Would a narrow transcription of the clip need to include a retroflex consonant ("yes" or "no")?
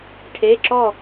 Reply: yes